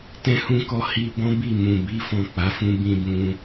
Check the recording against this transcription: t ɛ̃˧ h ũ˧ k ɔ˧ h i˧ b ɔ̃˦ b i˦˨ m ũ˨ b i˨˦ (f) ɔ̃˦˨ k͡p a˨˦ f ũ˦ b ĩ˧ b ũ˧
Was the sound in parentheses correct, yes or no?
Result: yes